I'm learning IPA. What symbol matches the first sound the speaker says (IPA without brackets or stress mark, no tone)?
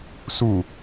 s